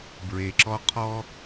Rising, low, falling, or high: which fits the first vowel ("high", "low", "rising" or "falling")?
low